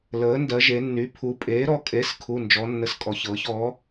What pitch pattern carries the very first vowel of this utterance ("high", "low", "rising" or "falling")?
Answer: rising